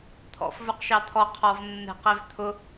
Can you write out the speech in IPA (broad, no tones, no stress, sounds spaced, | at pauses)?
t̪ʰ ɔ̰ f v ə˞ q ʃ ɑ t̪ʰ ɔ qʰ ɔ v nː ɛ̤ q ɛ v t̪ʰ ʊ